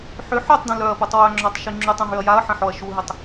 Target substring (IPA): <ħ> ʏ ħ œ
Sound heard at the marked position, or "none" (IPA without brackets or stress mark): ħ